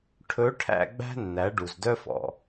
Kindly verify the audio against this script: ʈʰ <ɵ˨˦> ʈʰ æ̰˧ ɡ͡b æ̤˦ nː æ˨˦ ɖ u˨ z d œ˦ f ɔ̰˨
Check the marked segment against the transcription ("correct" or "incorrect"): correct